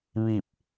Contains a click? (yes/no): no